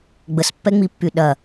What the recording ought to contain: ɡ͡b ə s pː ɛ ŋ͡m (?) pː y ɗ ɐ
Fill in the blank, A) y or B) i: B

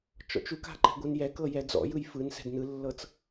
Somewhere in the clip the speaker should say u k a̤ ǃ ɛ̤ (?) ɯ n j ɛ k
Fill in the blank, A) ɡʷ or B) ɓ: A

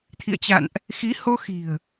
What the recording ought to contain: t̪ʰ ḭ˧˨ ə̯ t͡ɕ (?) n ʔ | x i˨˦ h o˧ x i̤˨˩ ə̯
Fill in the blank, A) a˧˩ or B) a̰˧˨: B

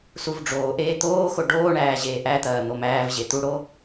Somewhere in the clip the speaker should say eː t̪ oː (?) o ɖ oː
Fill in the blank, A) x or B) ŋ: A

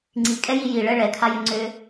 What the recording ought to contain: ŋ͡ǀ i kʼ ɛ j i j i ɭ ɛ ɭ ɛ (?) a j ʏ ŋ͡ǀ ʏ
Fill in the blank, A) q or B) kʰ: B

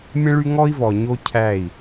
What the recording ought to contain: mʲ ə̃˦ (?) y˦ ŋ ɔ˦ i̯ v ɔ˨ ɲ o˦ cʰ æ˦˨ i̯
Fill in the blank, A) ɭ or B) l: A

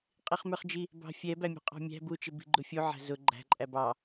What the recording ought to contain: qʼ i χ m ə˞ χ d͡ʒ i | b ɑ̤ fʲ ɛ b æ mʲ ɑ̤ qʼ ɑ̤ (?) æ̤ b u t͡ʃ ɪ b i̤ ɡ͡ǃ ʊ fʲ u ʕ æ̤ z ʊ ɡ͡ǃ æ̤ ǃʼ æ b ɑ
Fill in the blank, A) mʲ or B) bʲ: A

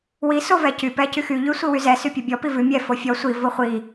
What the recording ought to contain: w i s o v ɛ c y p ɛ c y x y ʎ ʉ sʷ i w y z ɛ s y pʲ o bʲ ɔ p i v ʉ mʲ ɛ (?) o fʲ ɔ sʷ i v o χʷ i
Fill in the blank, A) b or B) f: B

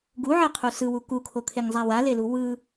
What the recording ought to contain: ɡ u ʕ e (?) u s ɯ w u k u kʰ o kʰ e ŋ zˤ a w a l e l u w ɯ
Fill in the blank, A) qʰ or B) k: A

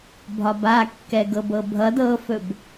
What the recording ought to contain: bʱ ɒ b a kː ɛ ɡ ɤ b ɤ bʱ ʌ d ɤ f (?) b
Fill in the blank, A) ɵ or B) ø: A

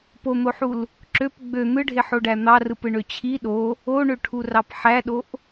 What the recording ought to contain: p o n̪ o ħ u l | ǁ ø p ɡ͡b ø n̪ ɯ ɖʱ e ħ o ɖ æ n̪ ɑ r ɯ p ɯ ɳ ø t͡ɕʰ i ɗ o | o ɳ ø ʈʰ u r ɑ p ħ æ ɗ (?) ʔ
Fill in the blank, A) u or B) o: B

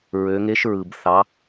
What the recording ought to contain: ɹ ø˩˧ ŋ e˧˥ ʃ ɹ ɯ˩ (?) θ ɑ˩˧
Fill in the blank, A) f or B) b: B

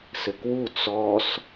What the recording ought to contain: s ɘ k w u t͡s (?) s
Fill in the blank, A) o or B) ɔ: B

